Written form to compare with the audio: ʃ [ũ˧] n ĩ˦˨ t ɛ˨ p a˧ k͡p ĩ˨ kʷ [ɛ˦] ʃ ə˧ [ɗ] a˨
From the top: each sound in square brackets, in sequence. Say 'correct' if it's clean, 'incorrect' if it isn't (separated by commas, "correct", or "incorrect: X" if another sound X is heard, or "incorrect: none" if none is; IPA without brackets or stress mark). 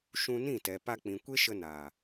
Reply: correct, incorrect: e˦, incorrect: n